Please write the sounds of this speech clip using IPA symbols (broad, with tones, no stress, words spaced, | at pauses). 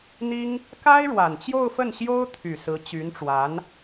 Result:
n̪i˥ŋ | ka˥ɪ̯ɻwa˨˩nt͡ɕjo˥˧ʊ̯fə˥˩n ɕjo˥ʊ̯t̪ʰy˨˩ sɹ̩˧˥t͡ɕy˧˥nʈ͡ʂwa˧˥n